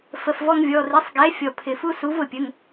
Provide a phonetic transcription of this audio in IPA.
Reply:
f ə˩˧˩ f v ɔ˦ ŋ vʲ ɔ˩˧˩ r i˨˥ sˤ ɡ ɛ˨˥ fʲ ɔ˩ pʰ ɪ˩ f u˦ s u˨˥ v ʊ˩ pʲ ə˩˧˩ ŋ

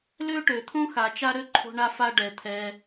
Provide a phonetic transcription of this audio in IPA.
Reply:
l ø˥ ʈ ø˩ t̪ʰ õ˥ x a˨ t͡ʃ a˥ ɾ ø˥ ǃʰ o̤˦ ɳ a˦ f a˦ ɖ ɛ˩ t̪ʰ ɛ˨

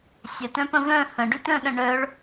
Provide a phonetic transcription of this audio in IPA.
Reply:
sʲ ə t œ̃ p ə̃ v œ̃ h ə̃ ɖ y t œ̃ ɗ ə̃ ɳ œ ɭ

